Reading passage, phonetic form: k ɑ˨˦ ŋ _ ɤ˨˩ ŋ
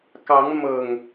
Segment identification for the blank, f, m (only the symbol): m